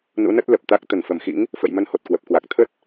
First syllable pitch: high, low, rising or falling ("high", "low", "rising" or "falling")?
rising